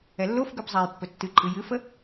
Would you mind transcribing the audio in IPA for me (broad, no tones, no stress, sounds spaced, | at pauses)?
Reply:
ɛ lː o f ɡ ʉ b zˤ ɛ j pː ɵ tː ɨ ǃʼ ɨ j ɨ f ə